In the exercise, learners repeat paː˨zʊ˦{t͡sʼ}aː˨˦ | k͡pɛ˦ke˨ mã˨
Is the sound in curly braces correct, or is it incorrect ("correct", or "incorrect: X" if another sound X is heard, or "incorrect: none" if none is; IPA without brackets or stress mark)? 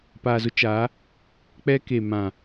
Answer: incorrect: t͡ʃ